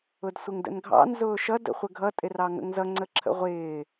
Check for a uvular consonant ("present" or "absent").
present